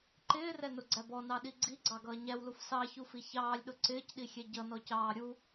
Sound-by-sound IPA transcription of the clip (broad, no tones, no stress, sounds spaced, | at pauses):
ǃ ɪː r ɛ n ʊ ɡ͡ǀ æ b ɔ n ɑ ɗ i ɡ͡ǀ i ɡ͡ǀ ɑ ɡ ʌː ɲ æ w l u f s ɑ ç u f i ç ɑː lʲ ɗ ʊ ǀ ɪː c ɗ i xʲ ɛ ɟ ʌ n ɔ c ɑː ɾʲ u